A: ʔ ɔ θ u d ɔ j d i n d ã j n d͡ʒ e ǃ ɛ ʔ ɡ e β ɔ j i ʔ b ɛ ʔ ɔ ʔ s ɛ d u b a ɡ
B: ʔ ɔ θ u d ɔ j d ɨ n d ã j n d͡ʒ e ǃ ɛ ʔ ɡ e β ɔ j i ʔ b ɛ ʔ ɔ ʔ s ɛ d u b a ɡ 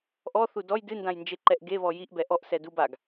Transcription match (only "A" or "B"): B